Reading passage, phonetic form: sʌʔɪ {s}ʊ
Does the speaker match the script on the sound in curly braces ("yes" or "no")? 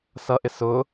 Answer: yes